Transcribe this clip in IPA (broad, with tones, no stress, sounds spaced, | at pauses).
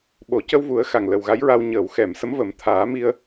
ɓ o˨˩˨ c ə˧ w v u˨˩˦ ə̯ x a˨˩ ŋ l ə˨˩ w ɣ a˧˥ j ɹ a˧ w ɲ əː˨˩˨ w x ɛ˨˩˨ m s ə˧˥ m v ə˨˩˦ m t̪ʰ aː˨˩˦ m i˧ ə̯